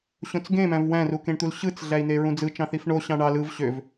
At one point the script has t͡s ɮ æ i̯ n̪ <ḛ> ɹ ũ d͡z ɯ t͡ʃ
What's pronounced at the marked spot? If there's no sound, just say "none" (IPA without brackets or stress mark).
e